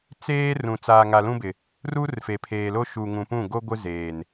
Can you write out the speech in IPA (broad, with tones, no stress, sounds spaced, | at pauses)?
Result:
t͡s eː˦ r ũ˨ t͡s aː˨ ŋ a˨ l ũ˦ b ɪ˨ | r u˦ r f e˨ pʰ eː˨ l o˦ ʃ u˨ ŋ ũ˨ p ũ˦˨ ɡ o˦ ɡʷ ɪ˦ z eː˨ n